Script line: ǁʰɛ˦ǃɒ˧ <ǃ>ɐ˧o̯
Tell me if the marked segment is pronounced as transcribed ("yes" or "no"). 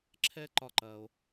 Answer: yes